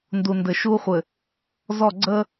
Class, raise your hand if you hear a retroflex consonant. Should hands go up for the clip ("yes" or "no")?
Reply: no